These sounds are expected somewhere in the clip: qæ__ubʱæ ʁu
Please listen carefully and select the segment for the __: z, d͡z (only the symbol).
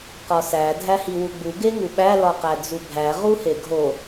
d͡z